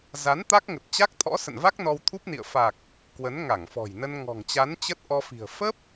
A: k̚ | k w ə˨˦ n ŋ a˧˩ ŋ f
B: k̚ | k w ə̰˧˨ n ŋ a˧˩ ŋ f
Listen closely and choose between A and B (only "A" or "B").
A